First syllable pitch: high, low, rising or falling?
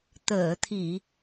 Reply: low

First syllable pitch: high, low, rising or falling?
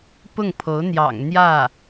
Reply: falling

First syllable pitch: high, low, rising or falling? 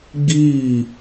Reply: falling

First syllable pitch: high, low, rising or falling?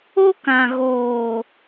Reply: high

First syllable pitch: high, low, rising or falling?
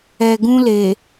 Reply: low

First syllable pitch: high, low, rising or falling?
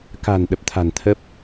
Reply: low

